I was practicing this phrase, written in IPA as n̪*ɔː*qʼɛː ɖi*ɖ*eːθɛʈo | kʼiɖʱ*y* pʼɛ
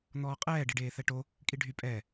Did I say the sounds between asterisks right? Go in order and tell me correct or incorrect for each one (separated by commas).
correct, correct, correct